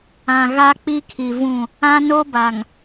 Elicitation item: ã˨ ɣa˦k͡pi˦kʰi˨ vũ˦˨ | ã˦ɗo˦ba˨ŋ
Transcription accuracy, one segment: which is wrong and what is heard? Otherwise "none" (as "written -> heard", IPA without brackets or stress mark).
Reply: ɗ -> n